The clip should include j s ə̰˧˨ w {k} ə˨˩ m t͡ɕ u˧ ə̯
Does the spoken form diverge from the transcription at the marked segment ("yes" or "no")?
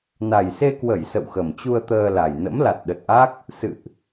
yes